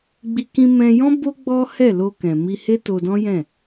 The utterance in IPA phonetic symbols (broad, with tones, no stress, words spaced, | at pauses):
ɡ͡bi˧ kĩ˧mɛ̃˧jɔ̃˦ bo˦ ɡ͡bɔ˦hɛ˦˨ lo˧ kɛ̃˨mi˧ he˦to˧dɔ̃˦ jɛ̃˦˨